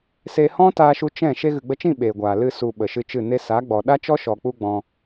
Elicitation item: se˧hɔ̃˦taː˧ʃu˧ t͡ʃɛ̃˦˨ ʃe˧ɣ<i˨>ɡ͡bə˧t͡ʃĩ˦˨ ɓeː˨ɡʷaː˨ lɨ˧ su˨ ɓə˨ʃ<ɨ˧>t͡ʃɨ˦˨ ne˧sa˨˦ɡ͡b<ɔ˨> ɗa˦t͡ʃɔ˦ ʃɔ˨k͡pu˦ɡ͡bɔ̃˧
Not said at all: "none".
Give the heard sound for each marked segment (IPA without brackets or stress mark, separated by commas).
ɨ˨, ɨ˧, ɔ˨